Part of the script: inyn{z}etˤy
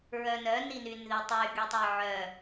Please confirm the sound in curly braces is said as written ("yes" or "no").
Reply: no